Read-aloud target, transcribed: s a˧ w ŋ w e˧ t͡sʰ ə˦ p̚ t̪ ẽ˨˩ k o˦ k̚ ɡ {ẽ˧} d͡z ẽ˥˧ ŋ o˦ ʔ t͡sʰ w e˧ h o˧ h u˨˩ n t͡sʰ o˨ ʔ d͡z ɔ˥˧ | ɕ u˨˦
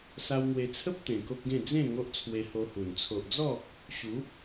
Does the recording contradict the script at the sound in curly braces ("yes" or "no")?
yes